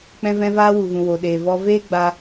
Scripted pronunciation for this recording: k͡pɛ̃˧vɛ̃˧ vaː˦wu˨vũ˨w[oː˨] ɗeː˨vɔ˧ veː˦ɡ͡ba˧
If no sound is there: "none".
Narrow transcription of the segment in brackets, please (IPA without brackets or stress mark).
o˨